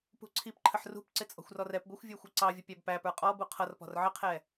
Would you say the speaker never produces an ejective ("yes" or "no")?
no